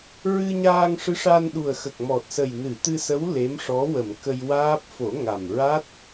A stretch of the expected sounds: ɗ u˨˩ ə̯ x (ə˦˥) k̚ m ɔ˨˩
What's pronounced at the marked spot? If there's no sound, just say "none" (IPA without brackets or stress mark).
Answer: ə˨˩